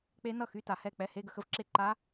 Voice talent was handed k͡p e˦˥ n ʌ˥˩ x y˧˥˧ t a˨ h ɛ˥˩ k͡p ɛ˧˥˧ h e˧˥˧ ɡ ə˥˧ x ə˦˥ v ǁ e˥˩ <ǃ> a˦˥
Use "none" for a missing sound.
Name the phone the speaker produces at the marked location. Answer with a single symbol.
ǃ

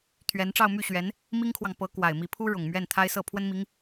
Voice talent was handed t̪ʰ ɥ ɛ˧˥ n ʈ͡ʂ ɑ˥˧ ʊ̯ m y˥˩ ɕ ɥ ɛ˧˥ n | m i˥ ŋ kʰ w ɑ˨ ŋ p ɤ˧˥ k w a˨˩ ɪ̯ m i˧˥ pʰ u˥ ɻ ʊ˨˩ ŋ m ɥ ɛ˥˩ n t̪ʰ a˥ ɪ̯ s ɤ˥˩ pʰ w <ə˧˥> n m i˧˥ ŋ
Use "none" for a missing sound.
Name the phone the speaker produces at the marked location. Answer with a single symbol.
ə˥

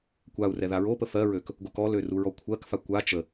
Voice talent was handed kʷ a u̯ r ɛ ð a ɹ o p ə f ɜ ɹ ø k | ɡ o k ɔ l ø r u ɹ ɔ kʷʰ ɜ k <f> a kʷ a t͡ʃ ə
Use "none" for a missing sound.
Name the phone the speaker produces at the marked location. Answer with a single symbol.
f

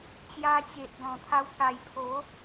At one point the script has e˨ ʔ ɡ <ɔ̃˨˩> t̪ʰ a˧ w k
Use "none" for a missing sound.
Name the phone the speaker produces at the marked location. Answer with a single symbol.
ɔ̃˨˩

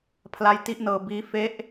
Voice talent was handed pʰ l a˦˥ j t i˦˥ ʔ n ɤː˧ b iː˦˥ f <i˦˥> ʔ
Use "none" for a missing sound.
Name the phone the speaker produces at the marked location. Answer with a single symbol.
e˦˥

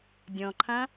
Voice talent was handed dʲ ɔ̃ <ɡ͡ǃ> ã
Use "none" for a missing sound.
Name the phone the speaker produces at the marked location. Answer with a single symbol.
ǃʰ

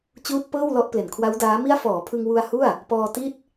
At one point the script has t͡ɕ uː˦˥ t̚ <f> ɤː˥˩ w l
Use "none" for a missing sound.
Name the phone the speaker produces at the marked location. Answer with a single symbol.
p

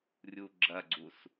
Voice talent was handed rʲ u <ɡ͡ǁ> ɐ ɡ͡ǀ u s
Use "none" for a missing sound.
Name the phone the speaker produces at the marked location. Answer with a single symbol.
ɡ͡ǁ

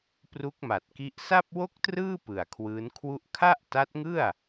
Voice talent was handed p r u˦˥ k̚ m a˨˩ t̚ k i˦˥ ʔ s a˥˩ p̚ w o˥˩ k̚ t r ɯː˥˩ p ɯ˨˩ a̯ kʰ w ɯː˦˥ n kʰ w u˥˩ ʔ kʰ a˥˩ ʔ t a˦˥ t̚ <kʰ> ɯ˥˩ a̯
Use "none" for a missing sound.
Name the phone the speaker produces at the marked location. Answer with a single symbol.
ŋ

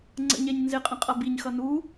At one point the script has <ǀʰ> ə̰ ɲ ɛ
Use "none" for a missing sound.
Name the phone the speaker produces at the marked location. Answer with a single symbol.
ŋ͡ǀ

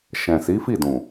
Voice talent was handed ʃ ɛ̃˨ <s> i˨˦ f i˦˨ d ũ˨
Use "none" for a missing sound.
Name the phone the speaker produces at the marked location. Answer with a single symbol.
s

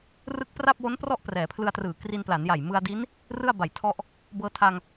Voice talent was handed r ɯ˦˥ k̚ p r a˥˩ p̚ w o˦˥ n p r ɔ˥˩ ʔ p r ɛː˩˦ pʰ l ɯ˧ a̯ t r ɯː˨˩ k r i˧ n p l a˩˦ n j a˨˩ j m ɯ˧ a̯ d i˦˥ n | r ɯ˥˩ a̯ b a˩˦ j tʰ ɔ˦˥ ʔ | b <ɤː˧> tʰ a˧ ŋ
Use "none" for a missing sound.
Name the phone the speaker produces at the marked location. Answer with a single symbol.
ɤː˧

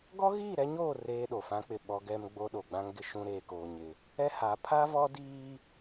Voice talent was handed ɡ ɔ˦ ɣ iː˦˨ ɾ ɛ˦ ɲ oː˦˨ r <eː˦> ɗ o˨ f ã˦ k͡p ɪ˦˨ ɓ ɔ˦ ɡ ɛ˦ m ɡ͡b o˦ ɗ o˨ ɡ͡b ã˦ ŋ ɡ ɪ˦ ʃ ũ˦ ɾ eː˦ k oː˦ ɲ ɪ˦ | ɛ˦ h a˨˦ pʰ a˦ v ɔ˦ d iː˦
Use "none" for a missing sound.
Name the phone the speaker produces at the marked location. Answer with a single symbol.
eː˦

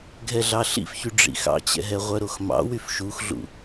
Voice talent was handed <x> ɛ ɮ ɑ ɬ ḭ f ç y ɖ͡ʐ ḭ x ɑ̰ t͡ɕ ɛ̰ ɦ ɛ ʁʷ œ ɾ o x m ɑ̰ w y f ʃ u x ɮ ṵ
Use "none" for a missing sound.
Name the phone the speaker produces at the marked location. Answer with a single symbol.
ɡʱ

